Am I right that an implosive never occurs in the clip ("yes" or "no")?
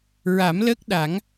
no